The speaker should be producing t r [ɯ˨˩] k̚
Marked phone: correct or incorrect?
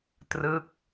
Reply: incorrect